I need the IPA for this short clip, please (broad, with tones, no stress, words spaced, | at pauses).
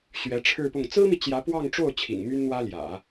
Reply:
ɕɥɛ˧˥ʈ͡ʂʰɻ̩˥˧pʊ˥˩ŋ t͡sɹ̩˥mi˨ t͡ɕjä˧˥pwɑ˥˧ŋʈ͡ʂo˥˩ʊ̯ t͡ɕʰḭ˨˩ŋmy˥nn̪wä˥ljä̰˨˩˦